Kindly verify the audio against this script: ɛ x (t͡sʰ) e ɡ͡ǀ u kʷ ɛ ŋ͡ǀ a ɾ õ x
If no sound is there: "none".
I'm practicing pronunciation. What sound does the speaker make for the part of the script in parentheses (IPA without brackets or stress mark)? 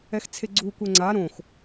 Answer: t͡sʰ